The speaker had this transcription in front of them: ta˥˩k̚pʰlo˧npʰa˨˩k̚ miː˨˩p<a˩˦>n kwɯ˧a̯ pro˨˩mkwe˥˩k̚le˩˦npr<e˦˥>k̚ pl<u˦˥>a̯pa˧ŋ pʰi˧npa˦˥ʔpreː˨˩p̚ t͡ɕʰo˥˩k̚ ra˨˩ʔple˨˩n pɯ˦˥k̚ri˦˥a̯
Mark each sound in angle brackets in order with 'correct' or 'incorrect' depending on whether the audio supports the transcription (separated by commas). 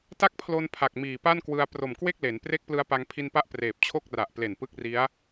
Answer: incorrect, correct, incorrect